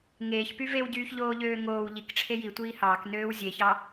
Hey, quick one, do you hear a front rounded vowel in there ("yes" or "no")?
yes